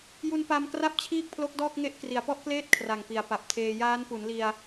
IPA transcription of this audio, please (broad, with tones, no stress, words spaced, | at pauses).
ju˧npa˧m kra˥˩p̚t͡ɕʰiː˥˩k̚pʰlo˦˥k̚ dɔː˥˩k̚ŋe˦˥ʔ kri˩˦a̯pɔ˦˥ʔkleː˥˩t̚ kʰra˨˩ŋpi˩˦a̯pa˨˩p̚tʰeː˧ jaː˦˥npu˩˦nli˧a̯